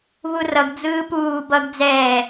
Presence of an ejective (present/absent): absent